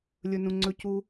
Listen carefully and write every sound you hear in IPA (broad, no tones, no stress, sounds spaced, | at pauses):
lʲ ɵ n ũ ŋ͡ǀ ɵ c u